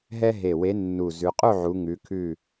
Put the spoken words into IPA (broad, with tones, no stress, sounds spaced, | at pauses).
ɦ ɛ˦ ɦ e˧˩ w e˨˥ nː u˧˩ z ʉ˩˧ qʼ u˥˨ ʕ u˩˧ ŋ ʉ˩˧ kʰ ʉ˧˩